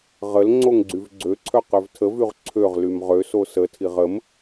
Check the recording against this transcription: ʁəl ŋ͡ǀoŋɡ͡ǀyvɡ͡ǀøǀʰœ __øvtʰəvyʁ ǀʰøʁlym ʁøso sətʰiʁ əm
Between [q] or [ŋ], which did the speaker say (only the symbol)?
q